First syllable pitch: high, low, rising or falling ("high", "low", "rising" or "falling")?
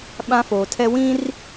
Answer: high